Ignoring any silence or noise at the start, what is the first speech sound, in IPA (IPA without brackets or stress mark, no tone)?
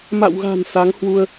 m